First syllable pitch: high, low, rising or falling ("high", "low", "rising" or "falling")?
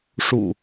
low